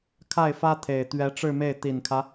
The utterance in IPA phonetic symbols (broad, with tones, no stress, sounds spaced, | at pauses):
kʰ a˥˩ ɪ̯ f ä˥ t̪ʰ e˨˩ ɪ̯ t̪ ɥ ɛ˧˥ ʈ͡ʂ ɻ̩˥˧ m e˥˩ ɪ̯ t̪ i˨˩ n kʰ ä˦